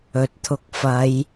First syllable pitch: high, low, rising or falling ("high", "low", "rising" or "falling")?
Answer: low